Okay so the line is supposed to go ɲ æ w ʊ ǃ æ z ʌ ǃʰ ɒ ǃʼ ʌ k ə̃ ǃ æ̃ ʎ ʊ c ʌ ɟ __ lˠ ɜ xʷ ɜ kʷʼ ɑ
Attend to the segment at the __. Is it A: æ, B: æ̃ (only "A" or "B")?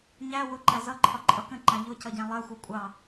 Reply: B